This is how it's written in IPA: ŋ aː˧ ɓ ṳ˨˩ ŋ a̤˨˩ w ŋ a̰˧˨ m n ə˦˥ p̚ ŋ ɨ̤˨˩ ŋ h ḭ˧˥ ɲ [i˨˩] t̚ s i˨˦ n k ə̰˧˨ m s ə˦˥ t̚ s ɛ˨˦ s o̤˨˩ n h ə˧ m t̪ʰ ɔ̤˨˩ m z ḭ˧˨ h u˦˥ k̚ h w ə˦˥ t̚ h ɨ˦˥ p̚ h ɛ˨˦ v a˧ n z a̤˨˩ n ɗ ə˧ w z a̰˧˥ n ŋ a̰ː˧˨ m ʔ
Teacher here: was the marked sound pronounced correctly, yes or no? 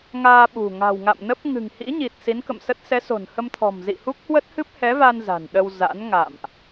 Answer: yes